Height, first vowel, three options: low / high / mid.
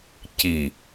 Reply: high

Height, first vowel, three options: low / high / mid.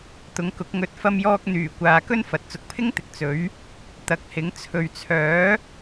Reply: high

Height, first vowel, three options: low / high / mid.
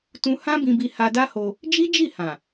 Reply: high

